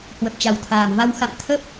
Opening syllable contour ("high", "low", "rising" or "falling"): low